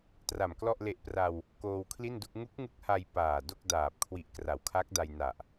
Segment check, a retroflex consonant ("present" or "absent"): absent